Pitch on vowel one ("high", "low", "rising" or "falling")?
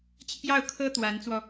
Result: falling